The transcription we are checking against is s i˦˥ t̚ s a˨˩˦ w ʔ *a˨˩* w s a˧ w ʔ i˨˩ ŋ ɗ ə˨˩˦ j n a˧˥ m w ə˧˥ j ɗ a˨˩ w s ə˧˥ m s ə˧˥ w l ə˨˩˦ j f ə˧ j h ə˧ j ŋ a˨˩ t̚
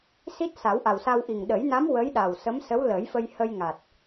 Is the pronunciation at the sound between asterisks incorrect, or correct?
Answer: correct